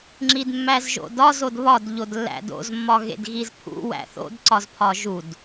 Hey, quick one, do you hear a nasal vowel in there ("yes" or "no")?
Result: no